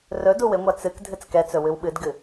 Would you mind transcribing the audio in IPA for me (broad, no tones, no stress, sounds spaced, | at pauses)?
r ɵ d u w ɪ ŋʷ a t͡s ɨ k dʱ ɨ t͡s k ɛ t͡s ɵ w ɨ w ɓ ɨ d ɡ ɨ